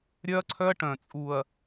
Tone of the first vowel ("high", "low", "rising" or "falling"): high